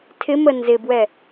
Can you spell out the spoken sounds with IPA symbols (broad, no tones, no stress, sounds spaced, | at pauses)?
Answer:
tʰ ɪ m ə n z ɪ b w ɛ